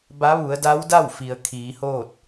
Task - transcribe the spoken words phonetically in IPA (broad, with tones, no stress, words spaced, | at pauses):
ba˧˥ʋu˩˧ə̯da˧˥wda˥˨w fi˩ə̯kʰiː˩˧hoː˥˨t̚